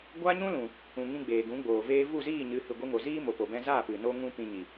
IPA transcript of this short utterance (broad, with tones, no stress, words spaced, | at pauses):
ɡʷa˦ɲũ˦lũ˨ | ũ˨ŋĩ˧ ɡ͡beː˨ɡũ˨˦ɡ͡boː˨ veː˧vu˦˨ziː˦˨ɲɨ˨˦ hɨ˨ɡʷi˧ŋo˨ziː˦ mo˨po˨bɛ̃˧zaː˦˨p ɨ˨ no˦ŋũ˦ pĩ˧ɲi˨